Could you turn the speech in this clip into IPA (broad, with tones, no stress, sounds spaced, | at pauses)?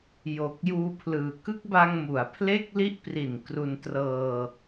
j o˨˩ k̚ j uː˧ pʰ l ɯː˨˩ k ɯ˦˥ k̚ b a˧ ŋ m u˩˦ a̯ pʰ l e˥˩ k̚ l i˦˥ ʔ p r i˨˩ n k r u˧ n t r ɤː˧